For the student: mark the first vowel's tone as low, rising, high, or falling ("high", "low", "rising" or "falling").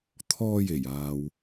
high